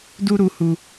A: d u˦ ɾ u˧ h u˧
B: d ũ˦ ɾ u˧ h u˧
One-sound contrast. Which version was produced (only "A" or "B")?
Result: A